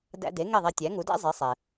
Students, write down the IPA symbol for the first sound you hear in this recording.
d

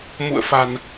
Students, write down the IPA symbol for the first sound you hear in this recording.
m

